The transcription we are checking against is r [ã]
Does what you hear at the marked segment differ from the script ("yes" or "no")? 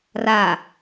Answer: yes